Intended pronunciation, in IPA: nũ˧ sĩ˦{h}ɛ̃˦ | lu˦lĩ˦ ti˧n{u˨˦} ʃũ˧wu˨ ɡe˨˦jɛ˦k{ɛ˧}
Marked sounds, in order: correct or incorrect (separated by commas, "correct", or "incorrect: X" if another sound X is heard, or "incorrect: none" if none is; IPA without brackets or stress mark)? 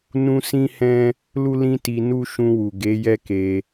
correct, incorrect: u˦, incorrect: e˧